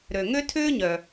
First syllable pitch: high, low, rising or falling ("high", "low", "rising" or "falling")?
low